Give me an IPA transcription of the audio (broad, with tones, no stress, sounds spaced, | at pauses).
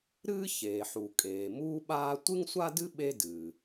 ɾ ɨː˥ ç eː˩ ħ u˩ kʼ eː˩ m uː˥ ɓ aː˥ tʷ ɨ˥ ŋ sʷ a˥ d ɨ˥ ɓ e˥ d ɨː˩